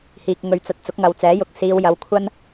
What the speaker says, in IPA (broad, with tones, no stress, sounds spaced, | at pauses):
h iː˧ k̚ ŋ ɵ˧ ɥ t͡s ɐ˧ t̚ t͡s ʊ˨˥ k̚ ŋ ɐ˨˧ w t͡s ɛː˨˥ j ʊ˨˥ k̚ s iː˨˧ w j ɐ˨˥ w kʷʰ ɐ˥ n